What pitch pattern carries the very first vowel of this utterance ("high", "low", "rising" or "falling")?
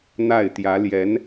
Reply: falling